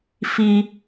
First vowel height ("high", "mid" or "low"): high